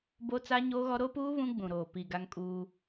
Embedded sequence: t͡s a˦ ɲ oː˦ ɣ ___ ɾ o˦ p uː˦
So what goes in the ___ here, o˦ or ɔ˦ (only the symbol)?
ɔ˦